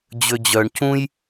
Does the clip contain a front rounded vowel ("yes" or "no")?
yes